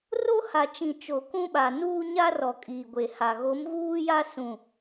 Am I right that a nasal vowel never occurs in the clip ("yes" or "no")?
no